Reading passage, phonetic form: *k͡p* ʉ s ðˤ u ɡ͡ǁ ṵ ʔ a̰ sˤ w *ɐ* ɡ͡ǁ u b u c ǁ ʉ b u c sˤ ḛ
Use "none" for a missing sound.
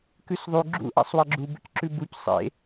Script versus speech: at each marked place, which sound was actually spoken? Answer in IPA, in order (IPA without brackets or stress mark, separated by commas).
k, ɐ